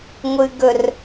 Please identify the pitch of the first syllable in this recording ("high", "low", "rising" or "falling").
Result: low